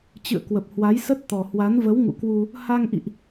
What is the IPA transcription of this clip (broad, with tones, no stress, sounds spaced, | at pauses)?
t͡ɕ ɨ̰˧˨ ə̯ k w ə˨˩ p̚ h w a˨˦ j s ə˦˥ t̚ t̪ ɔ˨˩ h w a˨˦ n v ə˨˦ w ŋ ṵ˧˨ k w u˧ | h a˧ ŋ ʔ ḭ˧˨ ʔ